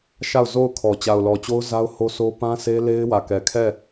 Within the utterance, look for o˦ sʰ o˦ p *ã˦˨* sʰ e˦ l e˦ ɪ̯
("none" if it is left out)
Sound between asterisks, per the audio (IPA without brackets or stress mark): ã˦